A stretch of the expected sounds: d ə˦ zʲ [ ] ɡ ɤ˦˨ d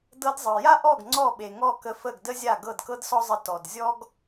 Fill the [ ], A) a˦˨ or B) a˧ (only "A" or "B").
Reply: A